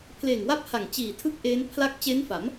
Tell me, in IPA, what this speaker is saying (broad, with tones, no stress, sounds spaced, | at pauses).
pʰ l eː˨˩ ŋ w a˥˩ p̚ h a˨˩ ŋ t͡ɕ iː˨˩ tʰ ɯ˥˩ k̚ ʔ eː˦˥ n pʰ l a˥˩ k̚ t͡ɕ e˦˥ n f a˩˦ m